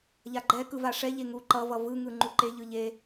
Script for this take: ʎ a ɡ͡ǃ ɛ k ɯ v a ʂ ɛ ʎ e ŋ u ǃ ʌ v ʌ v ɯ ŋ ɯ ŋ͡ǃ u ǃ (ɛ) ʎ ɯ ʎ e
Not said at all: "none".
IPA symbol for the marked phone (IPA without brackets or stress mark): e